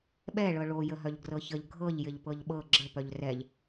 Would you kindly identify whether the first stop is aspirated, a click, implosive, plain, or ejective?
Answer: implosive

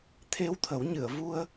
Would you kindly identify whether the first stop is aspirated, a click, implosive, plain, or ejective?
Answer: aspirated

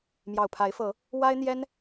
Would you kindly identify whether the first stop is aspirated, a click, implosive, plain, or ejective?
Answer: aspirated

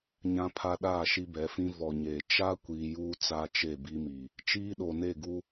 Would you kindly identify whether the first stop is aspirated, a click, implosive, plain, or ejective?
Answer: aspirated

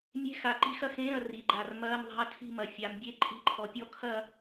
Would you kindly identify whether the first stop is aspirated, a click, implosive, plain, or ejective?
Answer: click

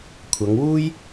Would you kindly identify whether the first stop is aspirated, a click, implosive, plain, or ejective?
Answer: aspirated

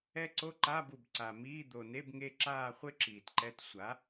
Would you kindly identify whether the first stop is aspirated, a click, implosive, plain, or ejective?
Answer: click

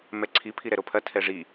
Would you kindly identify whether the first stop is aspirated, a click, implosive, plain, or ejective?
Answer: click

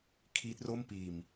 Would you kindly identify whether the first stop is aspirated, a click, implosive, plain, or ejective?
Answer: aspirated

